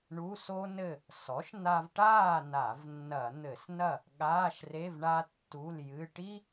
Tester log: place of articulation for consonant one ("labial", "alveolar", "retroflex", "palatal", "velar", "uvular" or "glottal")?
retroflex